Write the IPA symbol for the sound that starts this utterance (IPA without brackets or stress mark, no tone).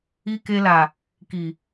i